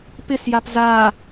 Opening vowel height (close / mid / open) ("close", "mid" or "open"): close